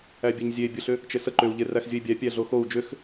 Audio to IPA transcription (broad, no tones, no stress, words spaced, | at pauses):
æbʲɛɲzʲe bʲʊɬʏ | t͡ʃesə ǃʏu̯ʎeræx zʲəi̯bʲæ pʲæɮoxou̯ d͡ʒʏx